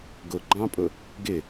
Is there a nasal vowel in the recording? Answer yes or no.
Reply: yes